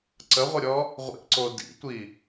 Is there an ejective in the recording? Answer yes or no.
no